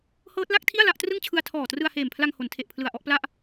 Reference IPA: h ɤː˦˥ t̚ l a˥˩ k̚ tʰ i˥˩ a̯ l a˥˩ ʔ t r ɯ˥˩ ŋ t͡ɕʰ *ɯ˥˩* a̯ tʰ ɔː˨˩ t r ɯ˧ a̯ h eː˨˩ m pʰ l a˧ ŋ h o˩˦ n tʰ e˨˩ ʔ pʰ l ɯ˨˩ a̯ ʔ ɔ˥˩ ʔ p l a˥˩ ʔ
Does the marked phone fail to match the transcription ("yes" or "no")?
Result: yes